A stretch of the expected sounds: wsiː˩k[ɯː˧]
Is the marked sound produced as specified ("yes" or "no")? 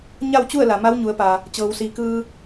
yes